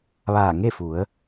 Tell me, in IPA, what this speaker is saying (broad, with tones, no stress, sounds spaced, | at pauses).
ʋ aː˧˩ ŋ e˥˨ f u˩˧ ə̯